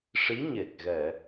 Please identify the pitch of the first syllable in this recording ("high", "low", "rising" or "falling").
rising